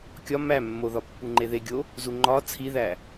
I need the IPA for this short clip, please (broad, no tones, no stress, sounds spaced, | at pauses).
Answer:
kʲ ɒ m æ mː o ð ɒ pː u ŋ͡ǃ e ð e ɡʲ o | z u ŋ͡ǃ ɒ t͡sʰ i ð æ